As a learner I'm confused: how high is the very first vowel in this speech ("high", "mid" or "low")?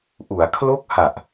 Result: high